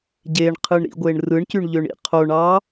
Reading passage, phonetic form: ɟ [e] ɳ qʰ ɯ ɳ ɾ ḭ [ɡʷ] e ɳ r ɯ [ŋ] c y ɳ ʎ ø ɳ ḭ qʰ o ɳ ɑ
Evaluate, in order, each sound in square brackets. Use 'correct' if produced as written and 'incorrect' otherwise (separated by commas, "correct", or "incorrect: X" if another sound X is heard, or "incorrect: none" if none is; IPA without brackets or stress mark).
correct, correct, incorrect: ɳ